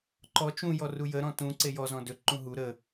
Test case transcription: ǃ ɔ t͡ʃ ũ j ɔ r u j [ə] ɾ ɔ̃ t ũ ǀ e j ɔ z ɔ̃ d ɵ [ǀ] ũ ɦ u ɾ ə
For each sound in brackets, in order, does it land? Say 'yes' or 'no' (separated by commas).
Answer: yes, no